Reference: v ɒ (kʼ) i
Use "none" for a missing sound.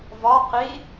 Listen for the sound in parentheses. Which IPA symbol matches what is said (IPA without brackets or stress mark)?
q